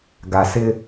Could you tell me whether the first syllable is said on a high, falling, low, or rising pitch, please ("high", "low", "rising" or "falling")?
low